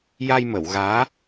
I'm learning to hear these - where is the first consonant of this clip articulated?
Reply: palate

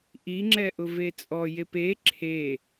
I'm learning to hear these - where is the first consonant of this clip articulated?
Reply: throat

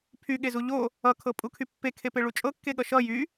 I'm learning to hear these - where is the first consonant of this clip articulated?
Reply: lips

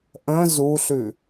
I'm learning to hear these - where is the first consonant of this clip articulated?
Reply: throat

